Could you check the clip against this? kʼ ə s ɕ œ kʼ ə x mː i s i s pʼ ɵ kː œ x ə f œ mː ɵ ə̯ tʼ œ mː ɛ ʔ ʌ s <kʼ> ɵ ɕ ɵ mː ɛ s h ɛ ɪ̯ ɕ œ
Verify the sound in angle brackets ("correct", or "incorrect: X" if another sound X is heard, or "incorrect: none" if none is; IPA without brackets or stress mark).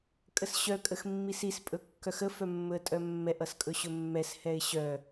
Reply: correct